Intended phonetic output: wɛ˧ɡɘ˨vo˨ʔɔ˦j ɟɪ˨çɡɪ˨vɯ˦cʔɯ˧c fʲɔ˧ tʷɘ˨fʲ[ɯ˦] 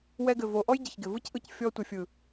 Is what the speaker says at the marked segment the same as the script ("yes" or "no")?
no